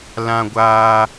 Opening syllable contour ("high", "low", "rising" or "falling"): high